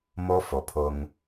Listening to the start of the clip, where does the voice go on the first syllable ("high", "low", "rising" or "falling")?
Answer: high